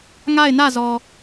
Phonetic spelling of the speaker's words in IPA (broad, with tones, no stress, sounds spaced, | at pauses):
ŋ a˦˨ ɪ̯ n ä˦˨ z ɔ˨